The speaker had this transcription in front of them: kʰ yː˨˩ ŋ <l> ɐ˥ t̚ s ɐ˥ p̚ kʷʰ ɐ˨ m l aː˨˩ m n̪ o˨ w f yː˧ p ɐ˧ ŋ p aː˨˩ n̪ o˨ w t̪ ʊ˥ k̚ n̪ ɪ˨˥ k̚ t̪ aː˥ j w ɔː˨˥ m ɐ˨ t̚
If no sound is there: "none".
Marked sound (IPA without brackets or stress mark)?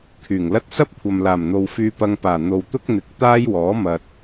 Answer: l